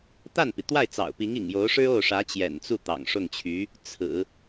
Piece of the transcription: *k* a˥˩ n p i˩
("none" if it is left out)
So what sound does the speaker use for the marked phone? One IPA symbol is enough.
t̪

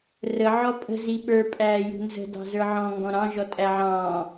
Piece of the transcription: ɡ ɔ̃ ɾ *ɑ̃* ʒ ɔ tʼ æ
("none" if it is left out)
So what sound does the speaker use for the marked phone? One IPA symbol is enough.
ɑ̃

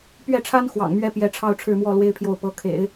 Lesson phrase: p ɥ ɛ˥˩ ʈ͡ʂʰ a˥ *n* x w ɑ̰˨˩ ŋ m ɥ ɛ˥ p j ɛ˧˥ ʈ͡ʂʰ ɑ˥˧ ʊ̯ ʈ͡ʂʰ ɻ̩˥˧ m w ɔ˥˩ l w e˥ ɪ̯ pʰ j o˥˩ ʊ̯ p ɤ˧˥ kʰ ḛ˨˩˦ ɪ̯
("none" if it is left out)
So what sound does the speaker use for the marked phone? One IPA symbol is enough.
n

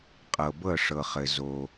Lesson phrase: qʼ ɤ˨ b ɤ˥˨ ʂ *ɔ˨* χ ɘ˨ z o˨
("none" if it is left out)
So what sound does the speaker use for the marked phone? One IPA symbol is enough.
ɤ˨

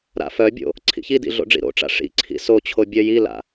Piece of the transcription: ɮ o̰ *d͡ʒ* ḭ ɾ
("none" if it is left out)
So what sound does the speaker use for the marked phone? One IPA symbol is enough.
ɖ͡ʐ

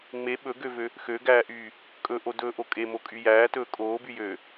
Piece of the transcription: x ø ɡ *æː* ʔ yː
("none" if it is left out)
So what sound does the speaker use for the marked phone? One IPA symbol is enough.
æː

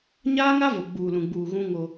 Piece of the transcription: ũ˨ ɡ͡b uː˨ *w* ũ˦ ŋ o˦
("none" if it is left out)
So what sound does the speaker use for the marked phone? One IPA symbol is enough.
ɣ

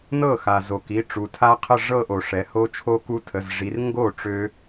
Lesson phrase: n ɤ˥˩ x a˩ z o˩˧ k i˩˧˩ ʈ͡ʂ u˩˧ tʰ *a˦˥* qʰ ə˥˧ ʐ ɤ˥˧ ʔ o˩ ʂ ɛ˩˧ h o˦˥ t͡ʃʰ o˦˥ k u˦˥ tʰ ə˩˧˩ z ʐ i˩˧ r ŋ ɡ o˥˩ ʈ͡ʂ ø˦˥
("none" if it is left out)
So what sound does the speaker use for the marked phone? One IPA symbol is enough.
a˦˥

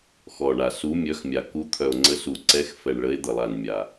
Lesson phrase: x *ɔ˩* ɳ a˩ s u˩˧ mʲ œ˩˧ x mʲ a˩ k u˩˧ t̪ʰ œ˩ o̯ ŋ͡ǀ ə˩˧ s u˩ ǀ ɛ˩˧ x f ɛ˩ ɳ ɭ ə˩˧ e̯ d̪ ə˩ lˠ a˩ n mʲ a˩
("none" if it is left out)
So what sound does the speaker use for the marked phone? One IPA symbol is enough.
ɔ˩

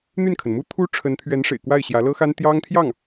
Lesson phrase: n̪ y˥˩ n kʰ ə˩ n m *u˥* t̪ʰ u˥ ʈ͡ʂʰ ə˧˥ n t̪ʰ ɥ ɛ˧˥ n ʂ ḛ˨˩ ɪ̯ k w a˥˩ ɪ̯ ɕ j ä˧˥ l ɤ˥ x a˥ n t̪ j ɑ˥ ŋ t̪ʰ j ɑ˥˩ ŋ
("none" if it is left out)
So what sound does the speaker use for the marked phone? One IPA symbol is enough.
u˥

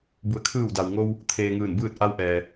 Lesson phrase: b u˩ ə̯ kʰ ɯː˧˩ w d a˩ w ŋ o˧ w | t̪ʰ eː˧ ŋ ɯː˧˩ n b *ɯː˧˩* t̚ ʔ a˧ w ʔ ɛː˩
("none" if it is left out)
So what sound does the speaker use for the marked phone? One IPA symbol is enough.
ɯː˥˨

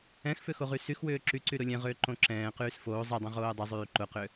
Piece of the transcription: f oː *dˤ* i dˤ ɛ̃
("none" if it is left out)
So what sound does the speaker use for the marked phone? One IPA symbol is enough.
zˤ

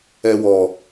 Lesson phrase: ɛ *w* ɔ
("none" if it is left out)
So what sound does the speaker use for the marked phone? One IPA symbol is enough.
w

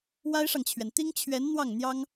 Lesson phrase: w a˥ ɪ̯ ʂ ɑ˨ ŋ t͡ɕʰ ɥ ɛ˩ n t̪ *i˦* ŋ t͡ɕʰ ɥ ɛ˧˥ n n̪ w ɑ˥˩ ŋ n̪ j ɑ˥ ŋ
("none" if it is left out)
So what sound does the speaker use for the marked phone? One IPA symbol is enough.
i˥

